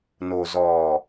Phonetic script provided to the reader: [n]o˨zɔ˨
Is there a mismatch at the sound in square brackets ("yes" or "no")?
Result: no